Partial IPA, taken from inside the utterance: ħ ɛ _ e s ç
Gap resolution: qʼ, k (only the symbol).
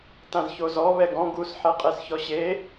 qʼ